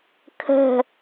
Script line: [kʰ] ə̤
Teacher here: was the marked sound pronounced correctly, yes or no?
yes